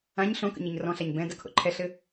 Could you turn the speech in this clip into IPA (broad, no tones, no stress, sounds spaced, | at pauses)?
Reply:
ã ɲ ɬ õ k ə̰ ɲ i ɲ r ɔ̃ ɬ a ɲ b ɛ̃ d ɐ kʰ o̰ ǃʰ ɛ ɬ ɘ